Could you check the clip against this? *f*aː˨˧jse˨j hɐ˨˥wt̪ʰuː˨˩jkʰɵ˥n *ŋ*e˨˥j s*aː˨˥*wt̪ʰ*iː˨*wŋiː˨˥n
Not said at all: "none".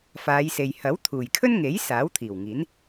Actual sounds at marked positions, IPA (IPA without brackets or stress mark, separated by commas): f, ŋ, aː˨˥, iː˨˩